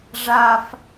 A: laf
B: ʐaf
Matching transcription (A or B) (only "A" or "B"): B